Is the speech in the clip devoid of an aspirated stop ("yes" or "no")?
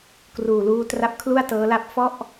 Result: no